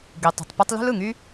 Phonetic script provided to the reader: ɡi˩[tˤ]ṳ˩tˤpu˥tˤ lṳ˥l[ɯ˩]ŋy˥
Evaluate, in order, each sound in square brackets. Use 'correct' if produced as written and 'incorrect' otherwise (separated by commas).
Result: correct, correct